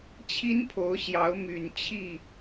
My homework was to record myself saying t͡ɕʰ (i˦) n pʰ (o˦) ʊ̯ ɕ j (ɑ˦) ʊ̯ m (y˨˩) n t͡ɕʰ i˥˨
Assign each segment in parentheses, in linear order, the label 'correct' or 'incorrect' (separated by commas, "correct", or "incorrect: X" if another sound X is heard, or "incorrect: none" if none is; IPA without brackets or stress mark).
correct, incorrect: o˨˦, incorrect: ɑ˨˦, correct